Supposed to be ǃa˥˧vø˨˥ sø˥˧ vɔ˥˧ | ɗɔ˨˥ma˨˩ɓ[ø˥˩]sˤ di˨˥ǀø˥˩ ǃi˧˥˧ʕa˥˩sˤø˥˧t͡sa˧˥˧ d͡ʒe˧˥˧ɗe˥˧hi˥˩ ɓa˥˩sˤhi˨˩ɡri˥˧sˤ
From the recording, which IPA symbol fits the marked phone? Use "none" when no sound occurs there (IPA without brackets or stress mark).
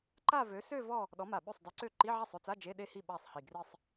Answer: ø˥˩